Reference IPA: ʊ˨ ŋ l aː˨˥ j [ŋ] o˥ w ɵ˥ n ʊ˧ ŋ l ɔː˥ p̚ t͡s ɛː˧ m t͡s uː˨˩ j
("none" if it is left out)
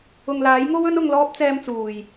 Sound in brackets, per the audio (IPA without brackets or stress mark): ŋ